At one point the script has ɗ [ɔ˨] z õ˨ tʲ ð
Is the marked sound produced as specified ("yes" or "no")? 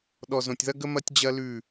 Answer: yes